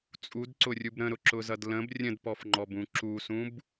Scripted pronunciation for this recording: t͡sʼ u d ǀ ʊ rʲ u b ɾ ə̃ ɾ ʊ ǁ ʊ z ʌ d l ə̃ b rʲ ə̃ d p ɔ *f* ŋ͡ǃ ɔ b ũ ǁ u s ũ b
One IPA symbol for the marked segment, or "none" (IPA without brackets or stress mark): f